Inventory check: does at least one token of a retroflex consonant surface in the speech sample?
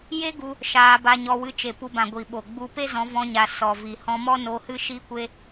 no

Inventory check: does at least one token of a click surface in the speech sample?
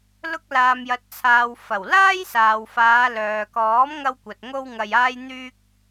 no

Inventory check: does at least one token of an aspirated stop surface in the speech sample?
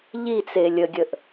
no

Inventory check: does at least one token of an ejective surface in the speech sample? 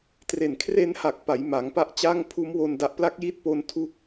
no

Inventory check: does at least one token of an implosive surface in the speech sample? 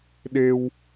yes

